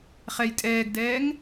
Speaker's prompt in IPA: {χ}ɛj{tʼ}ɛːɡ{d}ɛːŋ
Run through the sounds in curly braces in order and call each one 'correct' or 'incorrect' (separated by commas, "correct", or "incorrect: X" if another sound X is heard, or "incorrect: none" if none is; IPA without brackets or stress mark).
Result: correct, correct, correct